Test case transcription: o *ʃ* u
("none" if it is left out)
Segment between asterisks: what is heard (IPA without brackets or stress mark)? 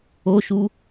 ʃ